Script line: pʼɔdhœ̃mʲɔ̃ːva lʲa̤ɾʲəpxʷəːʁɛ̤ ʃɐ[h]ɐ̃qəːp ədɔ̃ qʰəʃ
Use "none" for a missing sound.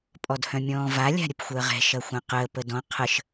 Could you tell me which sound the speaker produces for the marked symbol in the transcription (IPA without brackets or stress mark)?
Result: xʷ